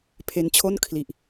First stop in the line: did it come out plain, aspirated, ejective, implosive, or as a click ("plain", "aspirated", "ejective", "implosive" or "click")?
aspirated